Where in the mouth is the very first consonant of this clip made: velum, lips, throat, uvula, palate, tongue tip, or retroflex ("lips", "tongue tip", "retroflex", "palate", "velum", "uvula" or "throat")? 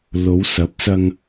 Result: tongue tip